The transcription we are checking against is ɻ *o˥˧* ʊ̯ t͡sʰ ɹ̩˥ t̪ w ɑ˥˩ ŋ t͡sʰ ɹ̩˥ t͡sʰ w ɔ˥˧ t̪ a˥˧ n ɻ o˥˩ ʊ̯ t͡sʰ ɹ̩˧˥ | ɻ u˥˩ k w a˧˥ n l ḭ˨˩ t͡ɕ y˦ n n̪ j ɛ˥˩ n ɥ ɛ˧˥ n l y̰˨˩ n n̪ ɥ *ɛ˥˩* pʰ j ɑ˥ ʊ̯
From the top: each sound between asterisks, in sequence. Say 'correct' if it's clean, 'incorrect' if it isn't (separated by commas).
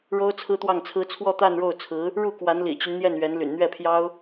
incorrect, correct